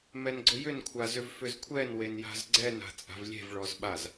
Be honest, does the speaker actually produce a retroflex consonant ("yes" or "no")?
yes